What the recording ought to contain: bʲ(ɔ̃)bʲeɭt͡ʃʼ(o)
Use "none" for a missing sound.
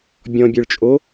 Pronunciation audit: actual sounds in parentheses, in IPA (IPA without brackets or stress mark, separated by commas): ɔ̃, o